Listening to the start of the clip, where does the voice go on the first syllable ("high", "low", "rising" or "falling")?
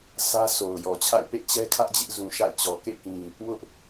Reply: high